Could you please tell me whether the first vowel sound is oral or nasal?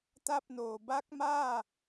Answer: oral